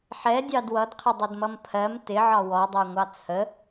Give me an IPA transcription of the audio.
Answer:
ħ ɛ dʲ ɑ d w ʌ d qʰ ɪ dˤ ʊ d m ʌ m pʰ ɜ m t ɪ ʕ ɒ w ɔ dˤ ɜ ŋʷ ɑ t͡sʰ ə

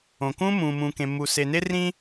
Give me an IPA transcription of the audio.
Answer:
õ˨ k ũː˦ m ũː˨ m ũ˨ k ẽ˨ mː u˨ s e˨ n e˦ r ĩ˦

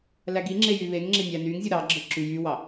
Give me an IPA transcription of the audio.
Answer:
l æ ɡ i ŋ͡ǁ e j y β e ŋ ŋ͡ǁ e nʲ æ n y ŋ zʲ u ɾ ɑ ɡ͡ǁ ɯ ǁ y j y w ɑ

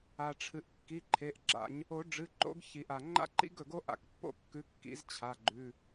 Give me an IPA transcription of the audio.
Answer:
a˩ ʈ͡ʂʰ ɨ˩ ʔ kː i˩˧˩ ǃʰ e˩˧˩ ʔ ɡ͡ǁ a̰˨˩˦ ɲ | o˨˩˦ ɖ͡ʐ ɨ˩˧˩ ǃ o̰˨˥ ɡ ç i˩ ʔ a˩ ŋ͡ǃ a̰˥ ǃ ḭ˥ ɡ ɵ˩ ɡ o˥ ʔ a̰˨˩˦ k pː o̰˥ kː ʉ˨˥ kː ḭ˨˩˦ z t͡ɕʰ a˩˧˩ ɡ͡ǃ ʉ˩˧˩

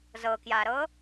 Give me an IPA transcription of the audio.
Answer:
z ɤ k j a ɾ ɤ

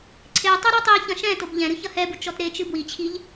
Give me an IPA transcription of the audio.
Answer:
ǀʰ e tˤ ɐ ɾ ɔ tˤ i ç ɐ̃ ʃ ɛ̃ t o b ʎ ɛ̃ ɾ ɨ ç ɐ h ɛ b u t͡ʃ ɔ t ɾ e t͡ʃ ɨ b w i t͡ɕʰ i ʎ

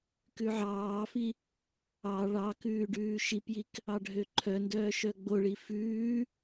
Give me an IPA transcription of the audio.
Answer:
k ʉ ʕ ɑː f i | ɑ ɭ ɑ k ʉː ɖ ʉː ʃ i p j i k | ɑ ɖʱ ø ǃʰ œ n d œː ʃ œ ɡ͡b o ɭ i f ʉː

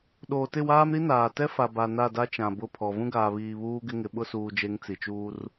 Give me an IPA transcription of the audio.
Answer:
ɗ oː˨ t ɪ˦˨ w aː˦ m ɾ i˦ n aː˨ t ɛ˦ f a˨ b a˨ n a˦˨ d a˦ t͡ʃ ã˨ b ʊ˦˨ pʰ ɔ˨ v ũ˦ ɡ aː˨ β iː˨ β uː˦ ɡ ɪ˦ ŋ ɪ˨˦ ɓ ʊ˦ s uː˨ d͡ʒ e˨˦ ŋ t͡s i˨ t͡ʃ uː˦ r

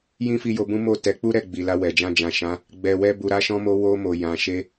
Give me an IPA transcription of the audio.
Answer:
j ĩ˦ f i˧ j o˧ b ũ˦ m o˦˨ t ɛ˨˦ k͡p u˦ ɾ ɛ˦˨ ɡ͡b i˨ l a˧ w ɛ˨ d͡ʒ ã˧ d͡ʒ ã˨ ʃ ã˨˦ | ɡ͡b ɛ˨ w ɛ˧ b u˨ ɾ a˨˦ ʃ ɔ̃˧ m o˧ w o˧ m o˨ j ã˨ ʃ e˧

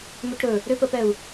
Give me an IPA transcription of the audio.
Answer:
m ʏ ʈ ɾ ɵ | ɾ ʏ p ə p ɛ u̯

